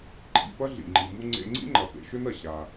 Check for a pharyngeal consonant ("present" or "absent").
absent